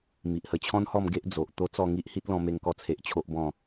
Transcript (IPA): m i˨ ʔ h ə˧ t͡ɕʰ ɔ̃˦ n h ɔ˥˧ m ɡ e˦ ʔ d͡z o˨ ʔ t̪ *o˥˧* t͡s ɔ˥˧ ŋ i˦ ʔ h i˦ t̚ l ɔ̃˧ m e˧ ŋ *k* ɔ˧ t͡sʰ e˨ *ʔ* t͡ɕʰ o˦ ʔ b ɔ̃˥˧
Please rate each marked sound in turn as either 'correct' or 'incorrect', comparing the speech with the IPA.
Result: incorrect: o˦, correct, correct

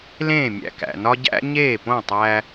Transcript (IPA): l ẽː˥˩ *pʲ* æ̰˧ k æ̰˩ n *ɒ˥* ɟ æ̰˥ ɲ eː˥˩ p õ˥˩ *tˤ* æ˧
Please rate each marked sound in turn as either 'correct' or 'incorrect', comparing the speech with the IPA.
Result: incorrect: mʲ, correct, correct

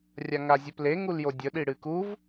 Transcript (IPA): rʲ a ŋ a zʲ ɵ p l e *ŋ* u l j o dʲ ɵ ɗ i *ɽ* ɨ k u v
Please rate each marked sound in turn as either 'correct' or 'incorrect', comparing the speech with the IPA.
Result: correct, correct

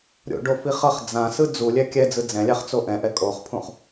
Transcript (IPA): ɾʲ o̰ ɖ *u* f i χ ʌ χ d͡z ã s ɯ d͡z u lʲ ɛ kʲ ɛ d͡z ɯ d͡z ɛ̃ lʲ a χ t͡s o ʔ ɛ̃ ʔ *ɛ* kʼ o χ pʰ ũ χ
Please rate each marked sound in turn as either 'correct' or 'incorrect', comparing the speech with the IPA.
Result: incorrect: o, correct

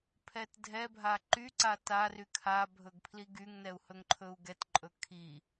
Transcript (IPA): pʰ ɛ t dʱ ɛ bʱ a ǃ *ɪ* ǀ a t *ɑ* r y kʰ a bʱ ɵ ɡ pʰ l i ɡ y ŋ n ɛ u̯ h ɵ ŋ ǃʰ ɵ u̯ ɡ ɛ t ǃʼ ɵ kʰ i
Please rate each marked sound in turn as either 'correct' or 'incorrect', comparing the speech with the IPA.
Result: incorrect: y, incorrect: a

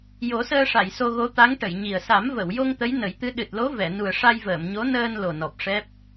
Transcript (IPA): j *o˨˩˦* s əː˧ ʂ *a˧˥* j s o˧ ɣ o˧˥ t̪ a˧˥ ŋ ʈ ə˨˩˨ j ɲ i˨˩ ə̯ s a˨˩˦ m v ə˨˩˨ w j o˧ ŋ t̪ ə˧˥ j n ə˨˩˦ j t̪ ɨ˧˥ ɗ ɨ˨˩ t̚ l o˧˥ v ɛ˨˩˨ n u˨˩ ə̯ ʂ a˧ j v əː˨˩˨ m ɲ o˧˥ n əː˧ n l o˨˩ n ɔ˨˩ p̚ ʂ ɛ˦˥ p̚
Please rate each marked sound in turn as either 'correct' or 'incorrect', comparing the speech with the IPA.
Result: correct, incorrect: a˨˩˨

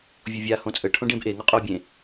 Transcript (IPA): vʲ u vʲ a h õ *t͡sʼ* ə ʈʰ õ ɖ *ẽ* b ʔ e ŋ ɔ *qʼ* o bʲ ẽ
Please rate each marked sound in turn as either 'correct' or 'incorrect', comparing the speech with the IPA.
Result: correct, correct, correct

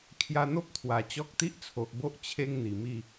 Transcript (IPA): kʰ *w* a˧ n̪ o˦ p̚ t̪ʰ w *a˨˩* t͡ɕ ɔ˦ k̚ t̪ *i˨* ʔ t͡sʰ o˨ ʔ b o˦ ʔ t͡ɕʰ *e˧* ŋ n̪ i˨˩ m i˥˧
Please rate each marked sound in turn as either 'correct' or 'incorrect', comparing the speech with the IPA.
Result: incorrect: j, correct, incorrect: i˦, correct

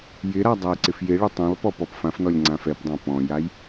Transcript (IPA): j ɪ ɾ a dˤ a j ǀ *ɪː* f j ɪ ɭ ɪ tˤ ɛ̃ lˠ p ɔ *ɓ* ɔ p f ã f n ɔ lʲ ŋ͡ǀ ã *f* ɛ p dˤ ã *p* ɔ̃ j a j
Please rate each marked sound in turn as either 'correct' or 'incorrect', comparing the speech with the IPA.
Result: incorrect: ɪ, incorrect: p, correct, correct

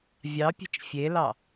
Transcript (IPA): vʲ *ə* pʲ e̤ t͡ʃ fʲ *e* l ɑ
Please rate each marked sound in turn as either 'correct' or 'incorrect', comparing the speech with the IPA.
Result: incorrect: ɑ, correct

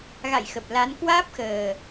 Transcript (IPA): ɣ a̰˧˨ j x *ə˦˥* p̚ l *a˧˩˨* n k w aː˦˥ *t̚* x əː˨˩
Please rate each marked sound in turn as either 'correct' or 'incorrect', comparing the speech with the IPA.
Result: incorrect: ə˨˩, incorrect: a˨˦, incorrect: p̚

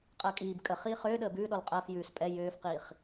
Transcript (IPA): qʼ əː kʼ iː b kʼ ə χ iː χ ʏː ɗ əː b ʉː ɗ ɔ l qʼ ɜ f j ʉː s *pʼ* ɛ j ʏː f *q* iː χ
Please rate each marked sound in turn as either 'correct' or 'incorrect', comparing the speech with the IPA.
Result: correct, correct

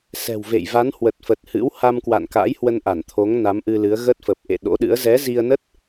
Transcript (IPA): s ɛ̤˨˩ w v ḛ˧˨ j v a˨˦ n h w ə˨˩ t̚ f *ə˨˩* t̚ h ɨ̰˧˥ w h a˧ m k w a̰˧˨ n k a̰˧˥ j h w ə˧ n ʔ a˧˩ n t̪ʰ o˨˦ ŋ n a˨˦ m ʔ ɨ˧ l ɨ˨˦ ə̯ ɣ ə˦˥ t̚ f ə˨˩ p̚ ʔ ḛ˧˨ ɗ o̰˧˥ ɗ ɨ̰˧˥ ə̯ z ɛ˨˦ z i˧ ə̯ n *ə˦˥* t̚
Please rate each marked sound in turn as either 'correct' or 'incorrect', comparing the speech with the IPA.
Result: correct, correct

